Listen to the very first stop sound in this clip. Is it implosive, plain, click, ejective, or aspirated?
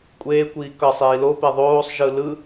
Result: ejective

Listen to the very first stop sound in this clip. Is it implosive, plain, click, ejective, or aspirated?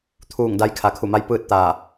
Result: aspirated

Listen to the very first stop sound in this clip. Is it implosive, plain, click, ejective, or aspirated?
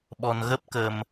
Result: implosive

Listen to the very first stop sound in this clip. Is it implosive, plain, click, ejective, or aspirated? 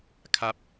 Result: aspirated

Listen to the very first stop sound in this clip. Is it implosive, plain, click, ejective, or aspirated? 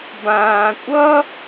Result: plain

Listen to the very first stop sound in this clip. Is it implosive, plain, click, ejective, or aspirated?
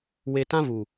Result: plain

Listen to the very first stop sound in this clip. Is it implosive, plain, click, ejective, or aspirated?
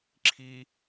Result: click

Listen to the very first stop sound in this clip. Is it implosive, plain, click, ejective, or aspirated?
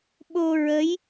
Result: implosive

